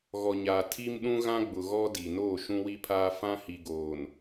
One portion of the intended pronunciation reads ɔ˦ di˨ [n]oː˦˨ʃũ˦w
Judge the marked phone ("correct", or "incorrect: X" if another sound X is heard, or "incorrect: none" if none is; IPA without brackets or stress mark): correct